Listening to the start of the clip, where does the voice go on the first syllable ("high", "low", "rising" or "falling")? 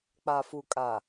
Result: low